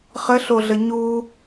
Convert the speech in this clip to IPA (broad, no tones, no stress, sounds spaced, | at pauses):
χ ə ɬ o ɮ ə ɲ u